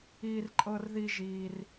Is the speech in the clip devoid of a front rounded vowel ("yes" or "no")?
yes